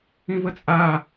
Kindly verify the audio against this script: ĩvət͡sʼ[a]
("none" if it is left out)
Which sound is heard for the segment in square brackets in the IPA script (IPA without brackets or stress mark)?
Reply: a